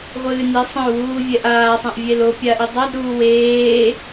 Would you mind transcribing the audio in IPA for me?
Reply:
ʁʷ ɨː n i sˤ ɐ̃ u̯ w uː vʲ ɛ ʔ aː sˤ ɛ̃ ʔ vʲ e l o pʲ a ʔ i dˤ a d ɾ uː w eː

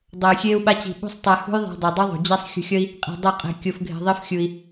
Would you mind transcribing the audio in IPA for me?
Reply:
dˤ o˧ j xʲ eː˦ u̯ ɓ a˦ t͡ɕ i̤˧ ɓ ṳ˦ sˤ tˤ e˧ h ṳ˦ j ðˤ e̤˧ dˤ i˨ dˤ ʌ˦ ðˤ ṳ˨ d͡ʑ a˦ sˤ xʲ ṳ˧ xʲ ʌ˦ i̯ | qʼ i̤˧ dˤ ɯ˦˨ qʼ ɛ̤˧ kʲ o˧ f ɡʱ e̤˧ ðˤ i˦ f xʲ u˧ i̯

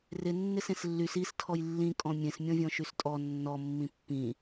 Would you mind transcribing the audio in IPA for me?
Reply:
r ɪ nː ɪ s ẽ s lː y s i s tʰ ɔ j lː ĩ kʼ ɔ̃ mʲ ẽ s mʲ ɔ̃ vʲ ɔ̃ ʃ y s tʼ ɔ nː ɔ mː ĩ pː ĩ

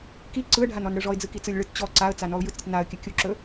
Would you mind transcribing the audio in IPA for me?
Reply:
k i ǀ ɯ ə̯ ɖʱ a n ɔ n ɽ ɯ ʐ ɔ ɪ̯ d͡z ɯ k i t͡s ɯ lʲ ɭ ɯ t t͡ɕ ɔ ǀ a ə̯ t͡s a n ɔ ʊ̯ j ɯ t͡s ɾʲ ɵ t n a ə̯ kʲ ə kʲ u ǁ ɵ

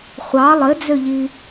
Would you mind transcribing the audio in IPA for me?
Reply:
χʷ ɑ lˠ ɘ d͡z ø ʎ i

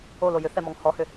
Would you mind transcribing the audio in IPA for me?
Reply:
o l o j ʏ θ ɛ m ɔ ŋ h ɔ h ʏ

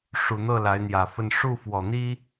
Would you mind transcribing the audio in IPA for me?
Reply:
ʂ u˨˩ n̪ ɤ˥˩ l a˧˥ ɪ̯ n̪ j ä˨˩ f ə˥˧ n ʂ u˥˩ f w ɔ˨˩ n̪ i˥

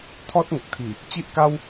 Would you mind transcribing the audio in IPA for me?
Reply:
t̪ʰ ɔ˦ t̚ ŋ ə˨ k̚ t̪ʰ i˨˩ | t͡ɕ i˦ ʔ k a˦ w

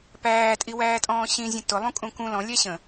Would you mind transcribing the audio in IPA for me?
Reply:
p æː tʼ i w æː tʼ ɔ̃ː ɕ ĩ zʲ ə̃ t ʊ lˠ ũ kʼ ũ k ũ l ɔ̃ lʲ æ ɕ ə̃

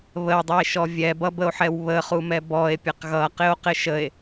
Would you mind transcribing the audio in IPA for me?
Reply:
β ə w dˤ i e̯ ʃ ɔ vʲ ɛ b ʌ b ə o̯ ħ ɛ w β ə χ u m ɛ b ɔ e̯ pʲ ə q ɣ ʌ q ɪ o̯ q ɪ ʃ ə e̯

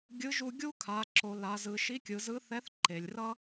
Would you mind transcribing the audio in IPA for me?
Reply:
ɡʲ ɯ˧˥ ʒ u˧ ɡʲ u˥ kʰ a˩˧ ǁ o˩˧ l a˩˧ z ɯ˩˧ ʃ i˧˥ kʲ ɯ˩˧ z ɯ˧˥ θ ɛ˧˥ θ ǃ e˩ lʲ r ʌ˥

